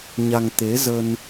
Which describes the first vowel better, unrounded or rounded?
unrounded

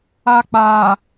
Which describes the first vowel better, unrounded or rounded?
unrounded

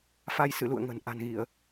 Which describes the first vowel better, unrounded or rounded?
unrounded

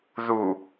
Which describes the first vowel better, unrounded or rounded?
rounded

